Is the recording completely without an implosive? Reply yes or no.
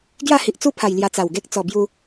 yes